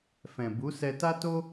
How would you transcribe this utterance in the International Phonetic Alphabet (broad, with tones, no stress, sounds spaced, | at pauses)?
f ɛ̃˨ b u˨˦ s ɛ˧ t a˦ t o˦